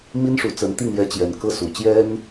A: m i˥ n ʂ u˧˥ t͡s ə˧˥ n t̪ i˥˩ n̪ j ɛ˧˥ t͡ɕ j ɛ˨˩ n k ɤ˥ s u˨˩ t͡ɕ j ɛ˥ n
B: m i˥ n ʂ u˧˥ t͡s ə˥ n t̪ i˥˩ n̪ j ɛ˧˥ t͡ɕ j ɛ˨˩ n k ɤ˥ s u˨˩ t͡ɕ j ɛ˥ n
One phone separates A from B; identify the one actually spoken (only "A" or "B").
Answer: A